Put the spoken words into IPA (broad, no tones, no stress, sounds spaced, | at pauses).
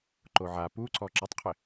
ǃ o ʕ a p u ǀ ɔ ǁ ɪ tˤ qʰ ɪ